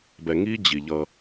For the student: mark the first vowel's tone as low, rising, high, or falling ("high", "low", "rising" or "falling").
low